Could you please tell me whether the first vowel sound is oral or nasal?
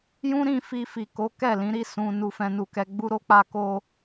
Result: nasal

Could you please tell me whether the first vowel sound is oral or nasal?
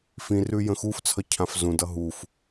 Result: nasal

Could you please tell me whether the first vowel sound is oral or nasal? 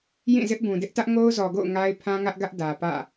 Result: nasal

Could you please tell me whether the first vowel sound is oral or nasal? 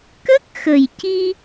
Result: oral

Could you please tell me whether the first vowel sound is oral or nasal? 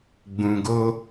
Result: nasal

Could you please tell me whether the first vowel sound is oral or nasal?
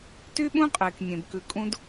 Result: oral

